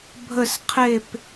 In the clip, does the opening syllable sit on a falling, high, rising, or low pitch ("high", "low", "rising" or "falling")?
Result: falling